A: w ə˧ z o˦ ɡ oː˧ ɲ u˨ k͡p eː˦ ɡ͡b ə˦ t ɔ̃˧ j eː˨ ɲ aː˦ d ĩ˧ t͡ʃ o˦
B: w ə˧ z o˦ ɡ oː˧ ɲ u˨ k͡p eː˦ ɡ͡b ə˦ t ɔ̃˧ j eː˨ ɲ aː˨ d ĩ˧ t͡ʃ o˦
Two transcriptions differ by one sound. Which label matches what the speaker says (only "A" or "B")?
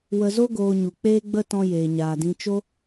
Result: B